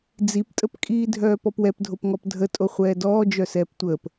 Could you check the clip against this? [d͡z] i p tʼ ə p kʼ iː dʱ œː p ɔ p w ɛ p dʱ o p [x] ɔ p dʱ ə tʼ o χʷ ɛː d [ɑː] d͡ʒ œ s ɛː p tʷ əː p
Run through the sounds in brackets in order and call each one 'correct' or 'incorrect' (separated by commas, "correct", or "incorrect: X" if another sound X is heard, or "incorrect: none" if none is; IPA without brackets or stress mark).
correct, incorrect: ŋ, incorrect: ɔː